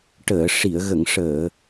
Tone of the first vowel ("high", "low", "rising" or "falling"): low